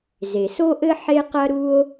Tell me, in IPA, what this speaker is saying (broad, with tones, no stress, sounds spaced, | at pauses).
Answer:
z e˩ s o˥ ʔ ɘ˥ ħ e˥ q ɐ˥ ɾ u˥ o̯